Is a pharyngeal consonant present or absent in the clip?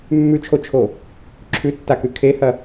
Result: absent